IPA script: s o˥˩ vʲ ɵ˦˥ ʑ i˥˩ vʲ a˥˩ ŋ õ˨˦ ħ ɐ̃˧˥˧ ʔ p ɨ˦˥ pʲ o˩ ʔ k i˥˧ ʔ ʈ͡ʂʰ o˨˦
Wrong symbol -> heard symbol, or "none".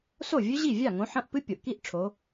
none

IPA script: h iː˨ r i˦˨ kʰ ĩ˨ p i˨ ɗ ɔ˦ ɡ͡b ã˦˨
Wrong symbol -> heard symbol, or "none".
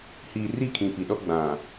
ã˦˨ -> ã˨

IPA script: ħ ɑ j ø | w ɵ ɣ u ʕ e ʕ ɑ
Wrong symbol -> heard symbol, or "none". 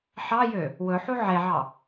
ɣ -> ħ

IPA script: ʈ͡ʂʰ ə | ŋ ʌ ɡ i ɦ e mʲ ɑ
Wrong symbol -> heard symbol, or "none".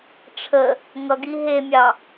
none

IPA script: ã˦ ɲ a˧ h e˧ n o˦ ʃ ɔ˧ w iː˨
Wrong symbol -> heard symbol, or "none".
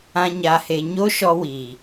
n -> ɲ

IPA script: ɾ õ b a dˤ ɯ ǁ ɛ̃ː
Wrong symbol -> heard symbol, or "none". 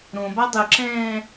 none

